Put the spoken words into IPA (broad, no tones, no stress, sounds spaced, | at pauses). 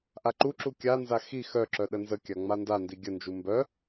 ʔ a ǃ u ǁ u kʲ a n z a x i x œ ǁ œ ɗ ə n z ə kʲ a ŋ͡m a n d a n d i ɡʲ ə n d͡ʒ u m b œ